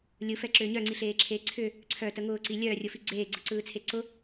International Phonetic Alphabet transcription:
lʲɯfɛǁʏː ɲœŋ͡ǀiɬeːǁʰeː ǀʰʏ | ǀʰœtə ŋʊːǀi lʲœːrʲʊfi ɡ͡ǀeːɡ͡ǀɯǀɯːt͡sʰe ǀʊ

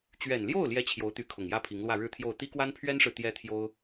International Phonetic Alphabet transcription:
t͡ɕɥɛ˨˩nljo˥˩ʊ̯ ljɛ˥t͡ɕʰjo˧˥ʊ̯t̪y˧˥ kʰʊ˨˩ŋjä˥pʰi˧˥ŋlwä˥˧ ɻɻ̩˥˧t̪ʰjo˥˩ʊ̯ t̪i˥kwa˥npʰɥɛ˥nʂɻ̩˨ t̪jɛ˥t̪ʰjo˥ʊ̯

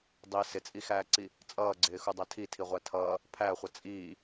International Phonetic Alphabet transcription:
dˤi sɪt͡sʼixæːǀi | t͡sʼʌːɡ͡ǀɪːxudˤɛ tʰitʰiʁʷæ tʰʌː | pʰæχʷʌ t͡sʼiː

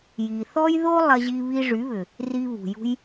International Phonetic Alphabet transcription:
ji˨θɔ˦j ðo˦ lˠɐ˧ʑi˧ βi˧ʐy˨˦βʏ˨ | ri˧βṳ˨jṳ˦j

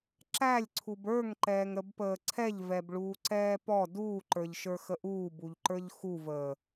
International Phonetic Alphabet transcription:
ǁælʲǀʰub ə˞ŋǃɛːŋɾəbpəː ǀʰɛʎvɛbɭuːǀɛː pɔ duːǃə˞ʎʃə˞xə ʔuːbuʎǃə˞ʎ xuvəː

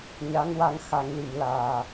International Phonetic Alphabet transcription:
ɲa˧˥ŋwa˧ŋxa˨˩˦ŋli˨˩˨m laː˨˩

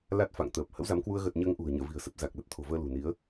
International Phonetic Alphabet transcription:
la˦˥t̚fa̰˧˨ŋ t̪əː˨˩p̚ hə̰˧˥wza˨˦mkwu˧ə̯ ɣə˨˩t̚ ɲəː˧ŋʔṳ˨˩ə̯ɲə̰ː˧˨vi̤˨˩ə̯ sə˦˥p̚za˨˩k̚lə˦˥t̚ t̪ʰo̤˨˩vəː˧lṳ˨˩ni˨˦ə̯

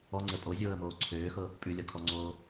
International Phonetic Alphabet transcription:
ɔŋ͡ǀə pʼozʲoːə̯moː ǀʰøːxɤ | pʼʉlʲɤkʰɔŋ͡ǀoː

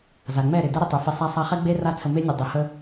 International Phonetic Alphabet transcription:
za˨ŋ͡mɛ˦˨ɾɪ˨ dɛ˦ɾɪ˧tˤu˨fe˧ sˤa˧sˤa˧χɛ˦ɡ͡be˦ ra˦t͡sʰə˧me˦nʲɨ˨ dˤɨ˨hə˦

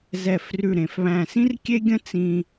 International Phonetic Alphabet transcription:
zɛ˧˩frʉ˧˩ ɾẽ˩˧fβæ̃˧˩sĩ˥rkʲe˥ ɡʲə̃˥t͡sĩ˧

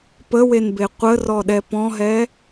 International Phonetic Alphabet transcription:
pəwenbe qʷərɔɗɛ pɔ̃ɦɛ

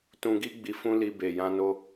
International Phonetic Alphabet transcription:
tũ˧ɡi˦ ɡ͡bi˧fũ˦li˧ be˨jã˧no˧

